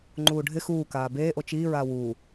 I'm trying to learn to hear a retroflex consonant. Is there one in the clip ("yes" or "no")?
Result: yes